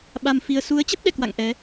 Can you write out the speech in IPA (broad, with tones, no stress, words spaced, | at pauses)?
ɓa˧mfi˧ə̯ su˨˦ə̯t͡ɕə˦˥p̚ɗɛ̰˧˨kwa̰˧˨ŋ ʔɛ˨˦